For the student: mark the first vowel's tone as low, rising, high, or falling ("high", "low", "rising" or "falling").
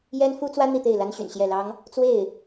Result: high